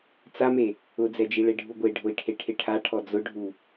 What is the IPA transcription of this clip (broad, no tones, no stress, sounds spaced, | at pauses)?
t͡s a m e | ʊ d͡z ɛ d͡ʒ i ɭ e ɖʱ u ɡʷ e ɖʱ ʊ i̯ ʈʰ e ʈʰ ɪ ʈʰ a ʈʰ ɔ d͡z ʊ ɖʱ u